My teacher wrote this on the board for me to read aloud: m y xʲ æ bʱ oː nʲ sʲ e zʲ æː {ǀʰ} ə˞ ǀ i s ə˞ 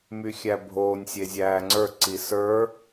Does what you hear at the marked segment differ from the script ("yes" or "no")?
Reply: yes